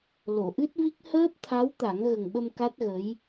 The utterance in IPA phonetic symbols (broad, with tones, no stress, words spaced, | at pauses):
lo˨˩˨ʔɨ˦˥t̚vi˦˥k̚ həː˦˥p̚t̪ʰa˧˥wt̪a˨˩˦ŋ ɣə˨˩ŋɓə˧m ka˦˥t̚ɣə˧˥j